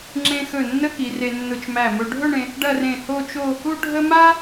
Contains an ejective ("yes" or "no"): no